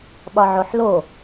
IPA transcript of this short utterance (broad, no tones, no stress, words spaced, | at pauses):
ɓɒʕoħlo